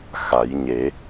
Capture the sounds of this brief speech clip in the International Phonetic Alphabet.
x a˨˩˦ j ɲ e˨˩˦

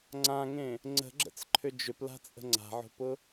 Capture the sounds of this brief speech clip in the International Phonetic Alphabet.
ŋ͡ǀ ã ŋ ẽ | ŋ͡ǀ ə̤ ɡ͡ǁ ə̰ t͡s ǃʰ ʏ d͡ʒ ʏ p l a̤ t͡sʼ ə̤ ŋ͡ǀ a̤ ʕ o̤ p ʊ

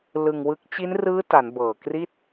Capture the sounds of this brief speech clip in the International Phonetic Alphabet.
l ɯ˧ ŋ w ɯ˦˥ k̚ t͡ɕ i˦˥ n r ɯː˦˥ t a˩˦ n b ɤː˨˩ k r i˥˩ t̚

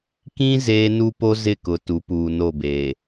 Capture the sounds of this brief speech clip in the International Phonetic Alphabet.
k ĩ˦ z eː˦ n u˦ p o˦ z ɪ˦˨ k ʊ˨ t u˨˦ p uː˨ n o˦˨ b eː˨

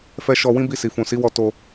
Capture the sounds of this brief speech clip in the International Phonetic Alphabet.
f ɛ˧ ʃ ɔ˧ w ĩ˦ b i˦˨ s i˨ f ũ˨ s i˨˦ w ɔ˧ t o˦

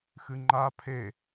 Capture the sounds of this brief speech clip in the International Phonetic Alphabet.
x ɨ ŋ͡ǃ a pʰ e

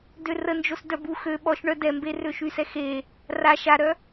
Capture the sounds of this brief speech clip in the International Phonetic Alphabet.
d ø r ə n d͡ʒ o s d œ b u x ø ɓ ɔ ʃ ɳ œ d ɛ m b e r ø ʃ y s ɛ x e | r a ʃ a ɾ œ

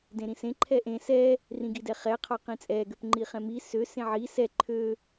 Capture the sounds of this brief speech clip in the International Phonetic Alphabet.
d ẽ ɾ ĩ s ẽ ǃʰ ɛ ʔ ẽ s ɛ | r ĩ ɡ i d ɛ χ ɛ qʰ ɒ q ĩ t͡sʼ ɛ ɡ ø p ŋ͡ǃ i χ ɛ̃ m i s ø s ẽ ʕ i s ɛ ǃʰ ø

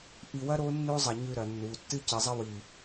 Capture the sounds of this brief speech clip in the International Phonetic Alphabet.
ʔ i˧ w ɐ˦ ɾ o˦ nː o˦ zˤ ɐ˧ ɲ ʉ˧ ɾ ɐ˨ nː u˨ tː ɨ˦ c ɨ˨ zˤ ɐ˦ w i˨

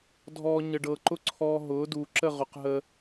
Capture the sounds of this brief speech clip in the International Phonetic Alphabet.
dʱ ɔː˧ ɲ ə˧ ɖ ɤ˧ ǃ ʊ˦ ǀʰ ɔː˧ ɦ ʊː˨˦ d uː˨ ǁ ə˦˨ ʁ ʊ˨ q ɦ ə˧

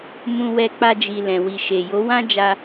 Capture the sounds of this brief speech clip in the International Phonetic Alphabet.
m ũ˧ w ɛ˧ k͡p a˧ d͡ʒ i˨ l ɛ̃˨ w i˨ ʃ e˨ j o˨˦ w ã˦ d͡ʒ a˧

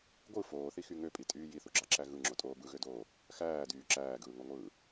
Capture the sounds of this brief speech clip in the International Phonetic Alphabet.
ɡʷ ɯ f oː θ i x y ŋ ø pʼ i tʼ yː j i θ u ɡ͡ǁ ɑ ǁ æ ɣ ɯ ŋ͡ǁ o tʼ oː b ɯ ɣ ø d oː | x æː d yː ǁ æː ɡ ɯː ŋ o ŋʷ ɯː

